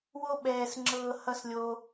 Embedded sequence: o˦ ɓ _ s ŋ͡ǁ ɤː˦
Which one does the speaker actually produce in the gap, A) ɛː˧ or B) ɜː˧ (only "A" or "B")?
A